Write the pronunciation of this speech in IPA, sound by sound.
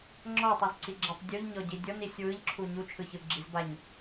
ŋ͡ǁɔtˤizǀiɡ͡ǁɛtˤ dʲuʎɲɔɟi dʲɔnisʲ wɯʎǁʰu ɲut͡ʃʰɯçɯ ɡ͡ǁizbaɲ

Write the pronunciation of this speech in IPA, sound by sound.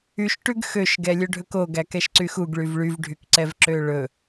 yʃʈʉɡ xøʃɡɛlʲɵ ɖʱɵkoɡæ kɛʃǀyxuɡ ɭyvɭyvɖʱyk ǀɛvǁøɭɵ

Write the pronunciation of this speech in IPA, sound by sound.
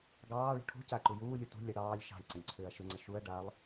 ɡɑːɭṳ ʈʰṳ ca ǃujuːlʲu tṳ lʲə ɽɑːlʲ ʃɑ̤lʲǀə̃lʲ ǀʰʏːɐ̯ʃʏŋ͡ǀə ʃuɐ̯ ɖalˠ

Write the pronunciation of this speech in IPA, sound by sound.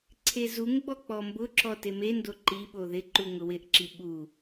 ǀʰezuŋɡ͡bɔ k͡pɔmbʊǁɔ temendo ǃiɓo ðɪ ǃuŋʊwɪʔǁi ɓu

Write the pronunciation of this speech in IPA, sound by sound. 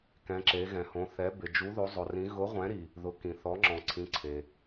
kɛ̃˨˦ǁe˨˦ɣɛ̃˨hõ˨˦ θɛ˨˦bɪ˨ d͡ʒu˨˦ðo˨˦zˤʊ˨rĩ˨˦ ɣʊ˨˦ʁʷɛ̃˨˦ɾi˨ | ðʊ˨˦kĩ˨θɔ˨˦ ŋ͡ǁɔ̃˨ǀʰĩ˨˦ǀʰe˨

